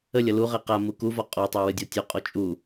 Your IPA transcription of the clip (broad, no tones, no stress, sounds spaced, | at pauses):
ə lʲ ʌ l u ʁ ɛ q a m u k u v ɒ qʼ ɔ tˤ a w ɨ dʲ ɒ tʲ ɔ qʼ ɔ t͡ʃʼ u